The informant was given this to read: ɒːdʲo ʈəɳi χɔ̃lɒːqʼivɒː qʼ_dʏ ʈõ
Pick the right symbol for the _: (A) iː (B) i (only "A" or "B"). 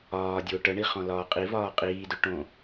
A